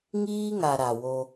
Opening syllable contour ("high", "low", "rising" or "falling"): high